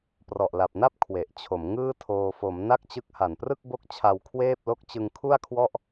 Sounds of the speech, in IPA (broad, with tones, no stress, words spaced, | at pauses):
prɔ˨˩ʔla˨˩p̚na˥˩p̚ kʰwe˨˩ʔt͡ɕʰo˩˦mŋɯː˥˩tʰoː˧ fo˩˦m na˥˩k̚t͡ɕɯ˦˥k̚ ha˨˩nprɯ˥˩k̚ bo˥˩k̚t͡ɕʰa˧wkʰweː˥˩p̚lo˥˩k̚ t͡ɕɯ˧ŋkʰu˥˩a̯kʰwɔ˥˩ʔ